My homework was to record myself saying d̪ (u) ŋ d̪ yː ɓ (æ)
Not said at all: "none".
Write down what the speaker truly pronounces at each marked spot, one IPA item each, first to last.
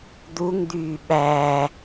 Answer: u, æ

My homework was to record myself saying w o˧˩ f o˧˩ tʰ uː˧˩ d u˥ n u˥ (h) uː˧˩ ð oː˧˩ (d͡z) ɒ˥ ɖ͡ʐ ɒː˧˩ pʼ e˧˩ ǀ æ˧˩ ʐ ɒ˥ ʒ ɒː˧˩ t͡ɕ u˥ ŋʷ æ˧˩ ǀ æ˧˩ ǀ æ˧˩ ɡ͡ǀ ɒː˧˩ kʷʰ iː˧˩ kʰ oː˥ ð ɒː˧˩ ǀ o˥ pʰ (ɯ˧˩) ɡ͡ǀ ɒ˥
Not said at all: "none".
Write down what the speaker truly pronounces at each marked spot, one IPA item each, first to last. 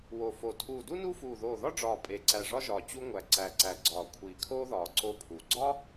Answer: f, ð, u˧˩

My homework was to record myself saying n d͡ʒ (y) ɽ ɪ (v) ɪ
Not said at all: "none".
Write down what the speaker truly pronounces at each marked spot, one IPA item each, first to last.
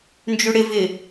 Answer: y, v

